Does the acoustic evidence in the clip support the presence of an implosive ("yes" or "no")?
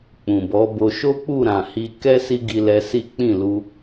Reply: no